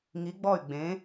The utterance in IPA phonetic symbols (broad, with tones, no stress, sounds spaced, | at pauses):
ŋ i˩˧ ɡ͡b ɔ˧˩ y̯ ɡ͡b ẽ˩˧